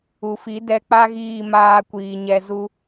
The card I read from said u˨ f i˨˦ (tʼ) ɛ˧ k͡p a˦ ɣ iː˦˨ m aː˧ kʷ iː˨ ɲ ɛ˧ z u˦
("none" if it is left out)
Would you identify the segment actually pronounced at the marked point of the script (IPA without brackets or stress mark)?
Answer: d